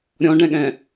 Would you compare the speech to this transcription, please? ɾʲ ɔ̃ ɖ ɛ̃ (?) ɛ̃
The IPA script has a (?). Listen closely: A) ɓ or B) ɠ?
B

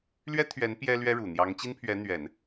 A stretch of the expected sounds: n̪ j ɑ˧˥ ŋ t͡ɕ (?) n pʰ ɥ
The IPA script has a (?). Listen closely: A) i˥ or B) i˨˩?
A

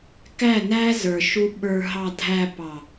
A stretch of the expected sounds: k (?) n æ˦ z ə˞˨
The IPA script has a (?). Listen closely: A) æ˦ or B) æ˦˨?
B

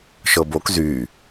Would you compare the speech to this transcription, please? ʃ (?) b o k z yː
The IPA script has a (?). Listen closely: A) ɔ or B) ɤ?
B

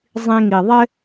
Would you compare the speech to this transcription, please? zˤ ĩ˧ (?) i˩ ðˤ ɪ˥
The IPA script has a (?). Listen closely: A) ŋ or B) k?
A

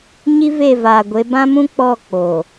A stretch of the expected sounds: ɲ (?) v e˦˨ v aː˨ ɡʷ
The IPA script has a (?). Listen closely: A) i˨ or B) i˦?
B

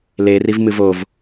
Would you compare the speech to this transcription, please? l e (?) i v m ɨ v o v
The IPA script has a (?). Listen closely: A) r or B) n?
A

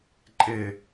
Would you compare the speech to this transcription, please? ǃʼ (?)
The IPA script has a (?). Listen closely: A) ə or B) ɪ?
B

